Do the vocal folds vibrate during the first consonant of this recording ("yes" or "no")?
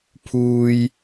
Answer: no